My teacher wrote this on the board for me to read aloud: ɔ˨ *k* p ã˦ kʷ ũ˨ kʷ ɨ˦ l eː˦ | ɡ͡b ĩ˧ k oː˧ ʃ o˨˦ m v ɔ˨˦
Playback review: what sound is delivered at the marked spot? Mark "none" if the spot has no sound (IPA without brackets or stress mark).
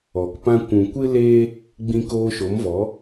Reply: k